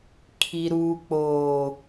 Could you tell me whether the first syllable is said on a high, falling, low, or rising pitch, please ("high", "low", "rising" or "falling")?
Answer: low